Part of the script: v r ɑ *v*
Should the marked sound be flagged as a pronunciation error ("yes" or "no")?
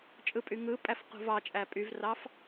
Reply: yes